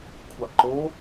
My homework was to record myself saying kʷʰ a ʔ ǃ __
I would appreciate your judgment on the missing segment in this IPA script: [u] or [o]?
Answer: o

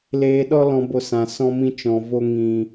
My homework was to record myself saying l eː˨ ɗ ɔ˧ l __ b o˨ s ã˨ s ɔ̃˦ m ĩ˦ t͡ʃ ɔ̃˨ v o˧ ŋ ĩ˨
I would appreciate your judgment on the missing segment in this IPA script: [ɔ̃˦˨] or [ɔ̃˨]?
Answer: ɔ̃˨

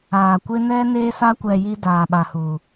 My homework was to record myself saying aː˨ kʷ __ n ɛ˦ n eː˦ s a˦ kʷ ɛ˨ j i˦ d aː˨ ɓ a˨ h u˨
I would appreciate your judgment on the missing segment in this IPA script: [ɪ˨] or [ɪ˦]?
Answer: ɪ˦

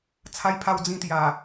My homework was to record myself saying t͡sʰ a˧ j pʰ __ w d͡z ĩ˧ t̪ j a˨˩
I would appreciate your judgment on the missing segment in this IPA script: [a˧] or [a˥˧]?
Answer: a˧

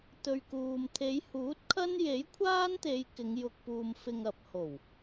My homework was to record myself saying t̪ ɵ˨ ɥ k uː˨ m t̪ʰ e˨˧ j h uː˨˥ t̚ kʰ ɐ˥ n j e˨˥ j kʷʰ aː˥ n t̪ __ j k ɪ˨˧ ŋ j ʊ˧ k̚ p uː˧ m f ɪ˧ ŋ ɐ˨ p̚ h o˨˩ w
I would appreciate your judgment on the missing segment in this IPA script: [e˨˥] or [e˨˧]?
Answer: e˨˧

